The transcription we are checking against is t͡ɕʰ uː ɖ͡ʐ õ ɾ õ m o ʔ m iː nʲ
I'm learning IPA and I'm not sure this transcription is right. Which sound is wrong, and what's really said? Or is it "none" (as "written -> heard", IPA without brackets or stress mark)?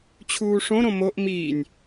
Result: ɖ͡ʐ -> ʂ